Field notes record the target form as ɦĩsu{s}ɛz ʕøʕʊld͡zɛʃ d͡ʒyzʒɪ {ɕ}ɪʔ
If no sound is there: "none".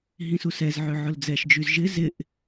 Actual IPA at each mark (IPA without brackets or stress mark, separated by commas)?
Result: s, z